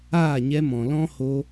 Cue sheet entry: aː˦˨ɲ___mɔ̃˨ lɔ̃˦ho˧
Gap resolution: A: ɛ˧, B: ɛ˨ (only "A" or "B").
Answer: A